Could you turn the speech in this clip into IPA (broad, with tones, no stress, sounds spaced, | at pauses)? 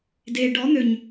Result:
d e˨ ɖ ɔ˨˦ n̪ ø˨ ɲ